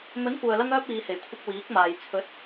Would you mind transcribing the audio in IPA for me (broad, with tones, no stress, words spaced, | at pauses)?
mɵ˨˥nkʷœː˨lɐ˧ŋœː˧p̚ iː˨˧he˨˩jkʷʰɪ˧k̚ wiː˨˥k̚maː˨j t͡sʰɵ˨˥t̚